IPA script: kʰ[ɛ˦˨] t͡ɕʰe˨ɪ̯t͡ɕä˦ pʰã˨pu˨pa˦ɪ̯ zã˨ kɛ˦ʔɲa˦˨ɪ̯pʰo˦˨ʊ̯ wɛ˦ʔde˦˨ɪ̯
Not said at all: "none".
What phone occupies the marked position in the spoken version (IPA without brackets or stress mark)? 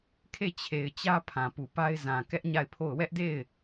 e˦˨